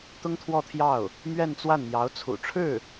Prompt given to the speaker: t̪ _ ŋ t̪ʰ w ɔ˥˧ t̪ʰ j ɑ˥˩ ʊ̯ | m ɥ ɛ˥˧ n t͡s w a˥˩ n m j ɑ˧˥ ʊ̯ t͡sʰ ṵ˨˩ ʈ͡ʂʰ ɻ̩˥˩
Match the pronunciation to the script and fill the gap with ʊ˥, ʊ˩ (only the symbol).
ʊ˥